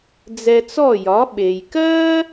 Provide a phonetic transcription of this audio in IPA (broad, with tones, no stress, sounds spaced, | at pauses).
d͡z ɛ˧ t͡s ɔ˥˩ j ɒ˩˥ ɓ e˩ j k ɜ˥